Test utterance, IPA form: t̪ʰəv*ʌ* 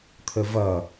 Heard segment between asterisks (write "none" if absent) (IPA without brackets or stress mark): ʌ